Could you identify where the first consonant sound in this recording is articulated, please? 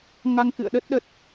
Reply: velar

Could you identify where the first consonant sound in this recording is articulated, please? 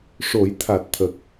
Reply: retroflex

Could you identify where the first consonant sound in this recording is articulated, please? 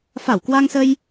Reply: labial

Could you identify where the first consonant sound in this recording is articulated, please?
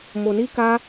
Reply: labial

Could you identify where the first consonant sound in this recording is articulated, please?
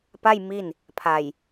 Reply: labial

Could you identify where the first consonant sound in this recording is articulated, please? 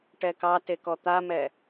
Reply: retroflex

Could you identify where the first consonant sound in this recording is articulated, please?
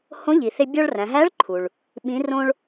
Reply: glottal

